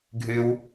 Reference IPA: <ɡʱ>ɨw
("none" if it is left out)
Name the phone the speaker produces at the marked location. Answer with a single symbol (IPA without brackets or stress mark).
ɡʱ